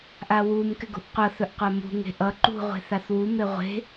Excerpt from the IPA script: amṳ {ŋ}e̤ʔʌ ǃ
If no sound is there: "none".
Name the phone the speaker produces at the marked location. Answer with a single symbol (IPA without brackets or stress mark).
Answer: ŋ